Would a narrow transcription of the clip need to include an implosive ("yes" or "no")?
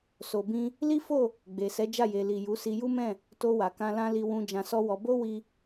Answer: no